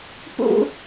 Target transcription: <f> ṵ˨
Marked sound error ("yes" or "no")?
yes